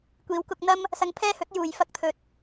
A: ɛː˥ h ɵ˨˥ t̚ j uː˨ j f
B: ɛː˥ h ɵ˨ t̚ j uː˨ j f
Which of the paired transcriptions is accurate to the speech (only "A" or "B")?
A